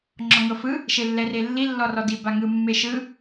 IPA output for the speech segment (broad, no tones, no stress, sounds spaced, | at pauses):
ŋ͡ǁ ɔ ŋ ɤ f ɯ | ʃ e lː ɛ r e lː i lː ɔ r ɔ d i b a ŋ ɯ mː e ʃ ɯ